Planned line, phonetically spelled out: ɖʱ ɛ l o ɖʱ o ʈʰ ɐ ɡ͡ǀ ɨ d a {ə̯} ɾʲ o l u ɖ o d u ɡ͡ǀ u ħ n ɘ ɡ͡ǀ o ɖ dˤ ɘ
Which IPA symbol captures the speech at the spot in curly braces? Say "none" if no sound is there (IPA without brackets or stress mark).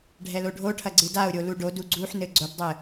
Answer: ʊ̯